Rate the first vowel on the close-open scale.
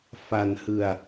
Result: open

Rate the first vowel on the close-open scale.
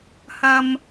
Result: open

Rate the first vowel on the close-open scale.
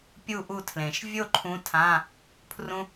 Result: close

